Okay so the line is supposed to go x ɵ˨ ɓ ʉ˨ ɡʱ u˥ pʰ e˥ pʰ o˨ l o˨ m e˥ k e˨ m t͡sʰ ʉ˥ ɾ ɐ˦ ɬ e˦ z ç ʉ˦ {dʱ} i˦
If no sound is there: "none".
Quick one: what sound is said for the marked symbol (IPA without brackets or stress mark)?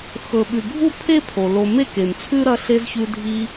dʱ